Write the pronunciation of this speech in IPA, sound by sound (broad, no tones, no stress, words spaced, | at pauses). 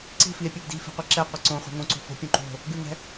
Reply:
ǀi̤fie̯pʲɛɡ di̤fi̤qʷi ǁɛqʷɛ ǀõχʷɛ̤ ŋõǀo̤ fo̤pʲõ ǃo̤ | ɡʉŋɛ̤